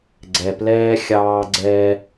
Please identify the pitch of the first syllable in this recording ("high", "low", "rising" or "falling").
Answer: low